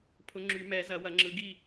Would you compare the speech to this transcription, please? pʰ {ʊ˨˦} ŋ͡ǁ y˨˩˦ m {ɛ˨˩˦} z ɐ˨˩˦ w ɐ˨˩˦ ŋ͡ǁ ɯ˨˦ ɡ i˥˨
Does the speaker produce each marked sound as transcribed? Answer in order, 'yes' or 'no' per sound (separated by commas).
yes, yes